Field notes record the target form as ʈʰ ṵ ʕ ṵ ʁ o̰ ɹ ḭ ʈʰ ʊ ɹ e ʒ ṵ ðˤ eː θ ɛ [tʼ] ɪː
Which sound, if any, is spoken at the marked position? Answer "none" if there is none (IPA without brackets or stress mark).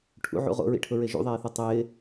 tˤ